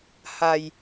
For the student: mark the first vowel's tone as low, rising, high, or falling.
low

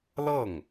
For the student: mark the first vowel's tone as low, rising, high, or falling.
falling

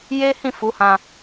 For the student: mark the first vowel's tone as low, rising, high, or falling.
high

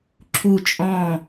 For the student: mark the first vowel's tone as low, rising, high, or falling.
falling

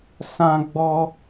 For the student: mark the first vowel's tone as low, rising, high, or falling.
high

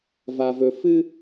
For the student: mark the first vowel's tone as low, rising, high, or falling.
low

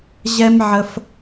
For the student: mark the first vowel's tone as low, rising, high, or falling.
high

